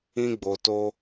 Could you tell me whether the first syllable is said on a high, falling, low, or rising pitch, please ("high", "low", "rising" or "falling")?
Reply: high